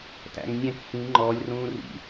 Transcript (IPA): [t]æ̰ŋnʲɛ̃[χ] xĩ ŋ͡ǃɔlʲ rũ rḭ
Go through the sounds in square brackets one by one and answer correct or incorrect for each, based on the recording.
correct, incorrect

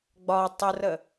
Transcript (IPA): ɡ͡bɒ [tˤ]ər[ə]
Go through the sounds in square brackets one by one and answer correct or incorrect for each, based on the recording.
correct, correct

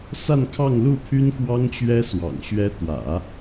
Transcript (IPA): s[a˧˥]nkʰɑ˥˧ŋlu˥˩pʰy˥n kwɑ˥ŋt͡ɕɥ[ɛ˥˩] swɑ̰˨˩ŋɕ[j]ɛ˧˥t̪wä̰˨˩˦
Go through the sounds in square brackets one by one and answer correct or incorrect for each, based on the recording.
incorrect, incorrect, incorrect

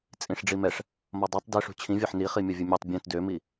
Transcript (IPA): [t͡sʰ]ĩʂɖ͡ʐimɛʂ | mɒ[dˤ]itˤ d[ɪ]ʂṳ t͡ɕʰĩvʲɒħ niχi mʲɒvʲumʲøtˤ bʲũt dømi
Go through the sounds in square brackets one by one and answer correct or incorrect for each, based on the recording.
incorrect, correct, correct

